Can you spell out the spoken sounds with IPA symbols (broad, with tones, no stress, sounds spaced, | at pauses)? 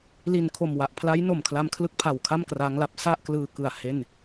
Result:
l i˨˩ n kʰ o˨˩ m w a˨˩ ʔ pʰ l a˦˥ j n o˨˩ m kʰ l a˧ m kʰ l ɯ˥˩ k̚ pʰ a˨˩ w kʰ a˥˩ m k r a˦˥ ŋ l a˦˥ p̚ s a˥˩ ʔ k l ɯː˧ k ɯ˨˩ a̯ h e˥˩ n